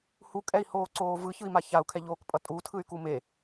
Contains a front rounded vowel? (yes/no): yes